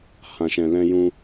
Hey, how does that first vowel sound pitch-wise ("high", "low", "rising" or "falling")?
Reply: low